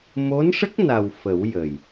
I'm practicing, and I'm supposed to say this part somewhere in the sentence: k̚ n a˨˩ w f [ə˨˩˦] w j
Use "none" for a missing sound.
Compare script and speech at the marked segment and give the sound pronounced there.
ə˨˩˦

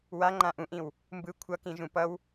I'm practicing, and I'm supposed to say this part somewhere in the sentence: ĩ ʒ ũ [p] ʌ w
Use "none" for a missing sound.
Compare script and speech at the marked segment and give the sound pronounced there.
p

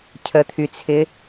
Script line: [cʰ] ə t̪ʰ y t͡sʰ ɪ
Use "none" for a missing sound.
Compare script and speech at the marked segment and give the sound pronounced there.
cʰ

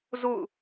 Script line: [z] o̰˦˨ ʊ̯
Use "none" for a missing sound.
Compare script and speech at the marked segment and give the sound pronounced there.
z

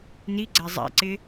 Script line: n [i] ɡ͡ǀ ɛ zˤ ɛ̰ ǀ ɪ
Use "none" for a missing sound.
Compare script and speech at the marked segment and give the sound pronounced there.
i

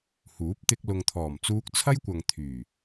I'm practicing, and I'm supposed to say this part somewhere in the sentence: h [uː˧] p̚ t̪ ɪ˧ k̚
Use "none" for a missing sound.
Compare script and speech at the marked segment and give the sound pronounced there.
uː˨˥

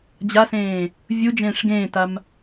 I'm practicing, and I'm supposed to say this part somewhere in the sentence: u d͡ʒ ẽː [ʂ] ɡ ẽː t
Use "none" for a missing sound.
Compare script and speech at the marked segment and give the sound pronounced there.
ʂ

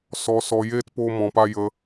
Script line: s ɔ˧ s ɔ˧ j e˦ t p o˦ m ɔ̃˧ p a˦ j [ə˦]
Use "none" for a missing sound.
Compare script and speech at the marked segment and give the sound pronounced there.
ə˦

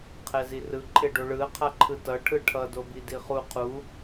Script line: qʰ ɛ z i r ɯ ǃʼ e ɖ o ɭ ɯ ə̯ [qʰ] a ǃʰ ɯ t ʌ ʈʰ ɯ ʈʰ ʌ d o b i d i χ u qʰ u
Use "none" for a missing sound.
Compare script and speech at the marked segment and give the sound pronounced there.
qʰ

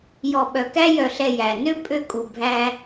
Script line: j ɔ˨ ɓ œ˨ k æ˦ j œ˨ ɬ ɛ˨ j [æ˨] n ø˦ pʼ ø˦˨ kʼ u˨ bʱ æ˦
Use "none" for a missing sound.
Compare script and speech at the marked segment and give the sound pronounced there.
æ˨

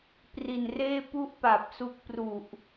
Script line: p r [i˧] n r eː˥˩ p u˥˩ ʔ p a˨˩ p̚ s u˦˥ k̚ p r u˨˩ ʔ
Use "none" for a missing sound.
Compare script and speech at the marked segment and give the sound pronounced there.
i˨˩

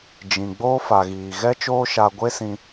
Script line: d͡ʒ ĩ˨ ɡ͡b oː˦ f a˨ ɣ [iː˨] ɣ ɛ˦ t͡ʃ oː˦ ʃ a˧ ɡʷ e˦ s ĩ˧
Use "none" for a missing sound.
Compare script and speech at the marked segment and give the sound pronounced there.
iː˨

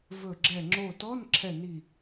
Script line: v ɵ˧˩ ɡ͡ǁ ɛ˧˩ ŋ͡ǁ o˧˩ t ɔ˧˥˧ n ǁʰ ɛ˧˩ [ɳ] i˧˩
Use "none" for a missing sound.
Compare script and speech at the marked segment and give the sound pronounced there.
n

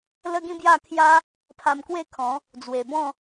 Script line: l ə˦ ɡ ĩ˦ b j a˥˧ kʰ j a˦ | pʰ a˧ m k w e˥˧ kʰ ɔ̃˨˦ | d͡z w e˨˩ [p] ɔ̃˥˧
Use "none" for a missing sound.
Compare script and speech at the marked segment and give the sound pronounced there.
b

